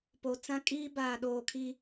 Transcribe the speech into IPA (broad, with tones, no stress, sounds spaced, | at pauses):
p o˨ t͡s ã˦ kʼ iː˦ b aː˨ ɗ oː˨ kʰ i˦